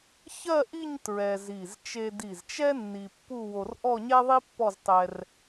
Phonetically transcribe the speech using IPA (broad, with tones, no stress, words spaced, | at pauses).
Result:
çɜ˥˧ʔi˥˧ɲ tɹɛ˧zi˧˩z t͡ʃe˧di˧˩zt͡ʃɛ˥ nːi˧pːu˥˧ wo˧rʔɔ˥˧ɲɛ˥ðˤi˥ pːɔ˥˧ztˤɛ˧r